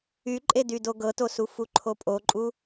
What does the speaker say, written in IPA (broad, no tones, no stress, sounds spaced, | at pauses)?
y ǃʼ e d y d o ɡ ɤ t o s u f u ǃʰ o pʼ o ǃʼ u